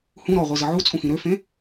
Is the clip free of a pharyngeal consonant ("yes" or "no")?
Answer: no